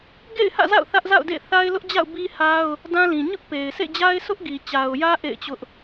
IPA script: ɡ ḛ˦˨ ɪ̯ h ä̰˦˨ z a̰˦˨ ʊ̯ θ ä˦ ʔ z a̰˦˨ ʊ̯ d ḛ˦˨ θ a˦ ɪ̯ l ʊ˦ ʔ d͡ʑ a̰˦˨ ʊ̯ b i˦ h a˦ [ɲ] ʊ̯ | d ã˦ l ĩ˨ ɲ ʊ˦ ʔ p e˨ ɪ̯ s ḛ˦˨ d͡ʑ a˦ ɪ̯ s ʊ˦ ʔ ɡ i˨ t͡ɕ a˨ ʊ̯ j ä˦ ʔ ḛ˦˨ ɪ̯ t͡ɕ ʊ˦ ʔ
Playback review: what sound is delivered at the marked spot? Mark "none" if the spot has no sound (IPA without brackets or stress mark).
none